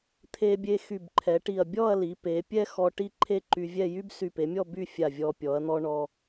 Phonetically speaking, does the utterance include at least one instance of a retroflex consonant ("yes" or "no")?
yes